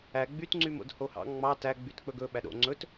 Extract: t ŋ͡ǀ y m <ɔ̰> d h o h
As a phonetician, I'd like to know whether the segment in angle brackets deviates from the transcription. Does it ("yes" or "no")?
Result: yes